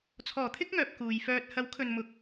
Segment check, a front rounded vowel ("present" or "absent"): present